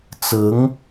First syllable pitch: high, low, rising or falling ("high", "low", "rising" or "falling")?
rising